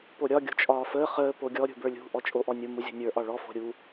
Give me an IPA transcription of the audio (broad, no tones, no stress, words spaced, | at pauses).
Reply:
poɾʲɒ ɡʲo̤t͡ʃʼɒːfəː χəː poɡʲɔ ɾʲṳbə˞lʲṳ ʔɔt͡ʃʼoʔɔnʲo muzʲɔ̤nʲə˞ ʔɒɭɔ fo̤ɾʲu